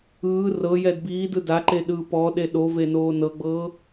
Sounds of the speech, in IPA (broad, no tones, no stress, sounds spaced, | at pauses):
ɯː r ɤ j ɛ d b iː d ɯ d a ǃ e ɗ ɯː p ɔ ɗ e ɗ o v e n oː n ɤ ɡ͡b ɤː